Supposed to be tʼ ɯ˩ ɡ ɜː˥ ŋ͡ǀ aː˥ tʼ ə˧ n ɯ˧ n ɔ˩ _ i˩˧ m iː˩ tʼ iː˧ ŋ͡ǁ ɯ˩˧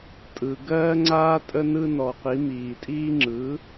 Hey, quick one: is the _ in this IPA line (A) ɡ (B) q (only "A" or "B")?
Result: B